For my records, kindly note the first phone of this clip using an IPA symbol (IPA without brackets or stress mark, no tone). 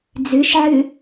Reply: d͡z